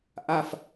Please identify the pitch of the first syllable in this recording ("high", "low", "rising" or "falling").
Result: falling